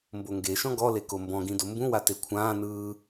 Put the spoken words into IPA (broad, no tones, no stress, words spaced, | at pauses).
mboŋɡeʃɔ̃ ɡɔle kombɔ̃ɡĩ dombũwa tekʷʰãːnɯː